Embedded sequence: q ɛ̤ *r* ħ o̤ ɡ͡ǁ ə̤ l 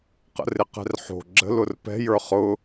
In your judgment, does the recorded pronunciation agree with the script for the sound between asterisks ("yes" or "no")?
yes